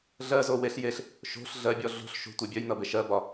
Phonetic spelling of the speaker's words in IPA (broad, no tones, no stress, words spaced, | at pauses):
ɮɜzo weɬ jeɬ | ʃo̤ɬ ɮɜbʲɔ ɮo̤ɬ ʃo̤tʷe bʲœjnʌ beʃɜbɒ